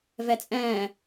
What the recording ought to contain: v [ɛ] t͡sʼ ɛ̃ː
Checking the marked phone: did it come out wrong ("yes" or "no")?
no